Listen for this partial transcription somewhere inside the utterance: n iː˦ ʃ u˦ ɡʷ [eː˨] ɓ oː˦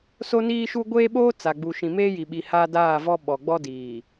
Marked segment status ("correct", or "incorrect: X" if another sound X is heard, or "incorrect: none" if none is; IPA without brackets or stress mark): incorrect: eː˦